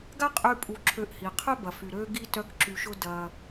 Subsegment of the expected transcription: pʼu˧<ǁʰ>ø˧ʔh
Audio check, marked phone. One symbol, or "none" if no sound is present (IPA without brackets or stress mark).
ǁʰ